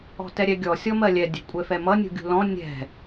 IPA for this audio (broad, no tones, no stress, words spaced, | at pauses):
ɔ̤tɛɾʲɛɡʲɔ sʲɔmɜlʲɛ dʲɛ̤kʷʼɛfɛmʌ nʲṳɡʲṳlɔ̃ nʲɛ̤